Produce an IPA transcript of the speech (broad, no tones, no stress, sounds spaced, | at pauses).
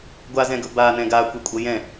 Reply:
ɡʷ a z ɛ̃ ɡ ɵ b a n ɛ̃ ɡ a kʷ ɛ kʷʼ ʌ j ɛ̃